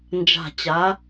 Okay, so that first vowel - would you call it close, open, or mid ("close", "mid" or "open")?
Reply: open